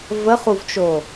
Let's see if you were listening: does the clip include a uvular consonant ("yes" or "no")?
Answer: yes